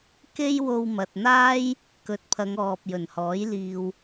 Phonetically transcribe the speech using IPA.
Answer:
k e˥ j w o˧ w m ɐ˨ t̚ n̪ aː˥ j | k ɵ˨˥ t̚ pʰ ɐ˨˧ ŋ ɔː˨ p̚ j ɵ˨˩ n h ɔː˨˥ j l iː˨ w

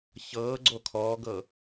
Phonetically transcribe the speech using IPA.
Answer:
ç ɤː ɡ͡ǀ o kʰ ɔː ɡ ɤ

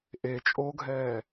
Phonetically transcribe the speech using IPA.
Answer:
ʔ e t͡ʃʼ o ɡʱ ɛː

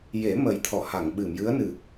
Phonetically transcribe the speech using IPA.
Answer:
j e˨˩˦ m ə˨˩ j t̪ʰ ɔ˨˩˨ h a˨˩˨ ŋ ɓ ɨ˨˩˨ m j ɨ˧˥ ə̯ n ɨ˨˩

